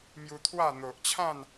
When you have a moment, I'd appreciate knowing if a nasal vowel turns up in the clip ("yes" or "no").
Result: yes